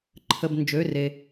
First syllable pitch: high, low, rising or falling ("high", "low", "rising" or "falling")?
low